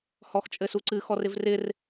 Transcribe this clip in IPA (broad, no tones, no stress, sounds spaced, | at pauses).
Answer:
h ɔ x t͡ʃʼ ɘ s u ǀ ɨ x ɔ r ɪ v r ɪ r